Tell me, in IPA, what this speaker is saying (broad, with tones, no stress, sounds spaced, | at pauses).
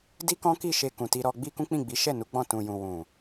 d i˦ k ɔ̃˦ k i˦˨ ʃ e˧ k ũ˨ t i˧ ɾ ɔ˧ ɡ͡b i˦ k ũ˦ k͡p ĩ˦˨ ɡ͡b i˨˦ ʃ ɛ˦˨ n u˨˦ ɡ͡b ɔ̃˦˨ t ũ˨ j ũ˨ w ũ˨